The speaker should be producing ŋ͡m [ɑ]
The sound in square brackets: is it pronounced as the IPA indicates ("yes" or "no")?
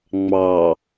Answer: yes